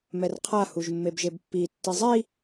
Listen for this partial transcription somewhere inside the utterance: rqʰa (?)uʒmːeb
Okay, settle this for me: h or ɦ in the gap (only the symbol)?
h